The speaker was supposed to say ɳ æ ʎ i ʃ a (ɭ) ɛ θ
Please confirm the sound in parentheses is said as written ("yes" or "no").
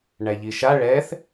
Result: yes